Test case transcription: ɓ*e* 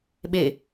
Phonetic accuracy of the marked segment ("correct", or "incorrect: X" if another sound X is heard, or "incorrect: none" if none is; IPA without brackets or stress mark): correct